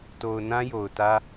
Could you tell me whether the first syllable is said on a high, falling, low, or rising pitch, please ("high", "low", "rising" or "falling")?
low